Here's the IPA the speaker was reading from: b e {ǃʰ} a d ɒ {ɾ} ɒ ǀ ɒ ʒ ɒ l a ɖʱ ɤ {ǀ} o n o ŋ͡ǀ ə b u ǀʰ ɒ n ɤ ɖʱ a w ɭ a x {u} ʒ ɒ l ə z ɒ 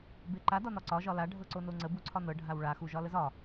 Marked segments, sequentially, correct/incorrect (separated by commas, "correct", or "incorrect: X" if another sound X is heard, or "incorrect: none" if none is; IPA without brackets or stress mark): incorrect: ǃ, incorrect: n, correct, correct